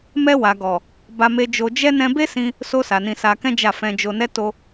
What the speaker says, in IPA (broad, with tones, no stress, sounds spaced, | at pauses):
m ɛ˧ w a˨ ɡ ɔ˨ | b a˧ m e˧ d͡ʒ o˧ d͡ʒ ɛ˧ n ɛ̃˧ b e˦ s ĩ˧ | s o˧ s a˨ n ĩ˧ s a˧ k ɛ̃˦ d͡ʒ a˦˨ f ɛ̃˧ d͡ʒ o˧ n ɛ˦ t o˦